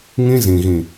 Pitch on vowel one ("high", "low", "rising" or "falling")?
high